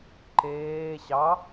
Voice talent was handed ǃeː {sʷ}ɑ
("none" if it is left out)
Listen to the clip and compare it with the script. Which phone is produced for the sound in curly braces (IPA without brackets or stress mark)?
ɕ